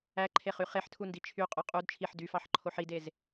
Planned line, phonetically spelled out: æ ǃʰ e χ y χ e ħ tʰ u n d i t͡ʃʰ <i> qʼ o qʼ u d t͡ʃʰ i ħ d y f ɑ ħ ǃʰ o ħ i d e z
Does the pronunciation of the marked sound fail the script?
yes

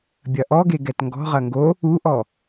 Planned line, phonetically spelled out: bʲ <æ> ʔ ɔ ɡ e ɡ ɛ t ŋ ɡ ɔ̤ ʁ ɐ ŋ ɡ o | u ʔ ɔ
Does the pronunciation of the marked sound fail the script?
yes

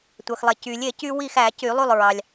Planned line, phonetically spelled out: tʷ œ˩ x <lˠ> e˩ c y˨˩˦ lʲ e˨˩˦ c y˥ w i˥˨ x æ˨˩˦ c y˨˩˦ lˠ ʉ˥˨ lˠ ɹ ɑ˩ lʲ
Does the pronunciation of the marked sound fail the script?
no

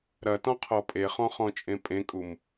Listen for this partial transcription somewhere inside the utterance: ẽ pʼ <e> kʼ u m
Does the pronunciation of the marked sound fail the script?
yes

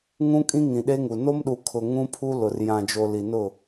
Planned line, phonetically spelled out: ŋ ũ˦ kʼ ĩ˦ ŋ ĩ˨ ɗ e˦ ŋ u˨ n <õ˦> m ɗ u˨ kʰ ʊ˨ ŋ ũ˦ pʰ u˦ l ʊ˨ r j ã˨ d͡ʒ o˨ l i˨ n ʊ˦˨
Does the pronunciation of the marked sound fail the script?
yes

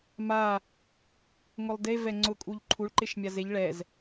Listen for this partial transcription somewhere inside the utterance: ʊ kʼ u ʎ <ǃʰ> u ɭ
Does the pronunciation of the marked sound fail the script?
no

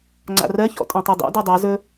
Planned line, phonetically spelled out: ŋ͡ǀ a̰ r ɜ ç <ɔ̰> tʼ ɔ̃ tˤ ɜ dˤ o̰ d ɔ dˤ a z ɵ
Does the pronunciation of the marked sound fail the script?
no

